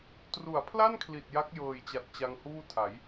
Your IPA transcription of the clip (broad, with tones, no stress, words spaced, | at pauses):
tru˩˦a̯pʰla˥˩nkʰli˨˩t̚ ja˦˥k̚jɤː˨˩jt͡ɕa˨˩t̚ t͡ɕa˧ŋhuː˥˩tʰa˩˦j